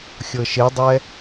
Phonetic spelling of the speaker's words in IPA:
xʲɤʃedˤɛ

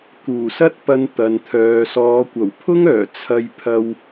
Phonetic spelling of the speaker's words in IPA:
kuː˨˩sɐ˥t̚pɐ˧n t̪ɐ˨nt̪ʰœː˨˧ sɔː˨˧kʷɐ˨˩w pʰʊ˥ŋœː˨˩ t͡sʰɐ˧j pʰɐ˧w

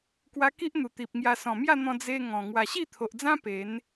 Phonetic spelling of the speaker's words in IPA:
kwa˧ki˦ʔ n̪u˨˩t̪i˨p̚ŋja˧ sɔ̃˨˩mja˥˧n̪ɔ̃˧ d͡ze˧ ŋɔ̃˨˩ ŋwa˨˩ɕi˥˧t̪ʰo˨ʔd͡zã˦ pe˨˦n

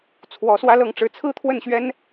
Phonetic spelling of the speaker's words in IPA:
t͡sʰwɔ˧˥swä˥lɤ˥˩ŋ ʈ͡ʂɻ̩˧˥t͡sʰɹ̩˥t̪ʰwə˥˩nɕɥɛ˥n

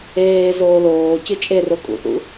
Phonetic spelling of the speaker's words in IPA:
eː zoːloːcɨ t͡ʃʼero kʼṵθṵ

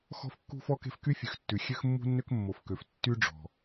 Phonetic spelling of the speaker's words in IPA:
xɔ̤˥fkːṳ˥ fɔ˥ke̤˥f ky˥fʲʉ˩xtːʉ˩ xʲø˥xmːṳ˥nːø˥k mːo˩fkø˩f tːy˥ɖ͡ʐɔ̤˩

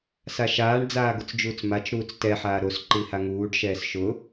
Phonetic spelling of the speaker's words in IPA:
saʃaːɳ d͡zaːɡʊt͡sd͡ʒuːt͡smat͡ʃ ɾuːt͡stɛ ħaːɾos ǃihaŋuːɖ ʃɛːsʃʊ

